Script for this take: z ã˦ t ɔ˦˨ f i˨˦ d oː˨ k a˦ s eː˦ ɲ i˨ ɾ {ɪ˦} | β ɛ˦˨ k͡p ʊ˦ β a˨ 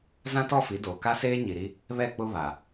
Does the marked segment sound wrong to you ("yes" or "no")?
yes